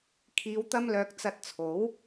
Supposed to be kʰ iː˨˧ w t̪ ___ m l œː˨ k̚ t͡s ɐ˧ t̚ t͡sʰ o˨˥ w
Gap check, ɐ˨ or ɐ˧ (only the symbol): ɐ˧